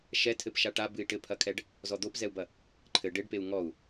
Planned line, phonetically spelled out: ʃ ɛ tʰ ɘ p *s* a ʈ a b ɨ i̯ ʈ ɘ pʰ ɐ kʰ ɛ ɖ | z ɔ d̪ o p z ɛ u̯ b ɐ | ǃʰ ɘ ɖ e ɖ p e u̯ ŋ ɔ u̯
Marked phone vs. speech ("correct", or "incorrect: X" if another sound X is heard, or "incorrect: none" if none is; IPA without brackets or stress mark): incorrect: ʃ